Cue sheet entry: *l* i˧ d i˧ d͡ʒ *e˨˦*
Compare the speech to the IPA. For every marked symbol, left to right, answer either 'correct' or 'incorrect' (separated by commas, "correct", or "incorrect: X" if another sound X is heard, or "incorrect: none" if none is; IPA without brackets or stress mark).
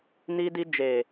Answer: incorrect: n, incorrect: e˨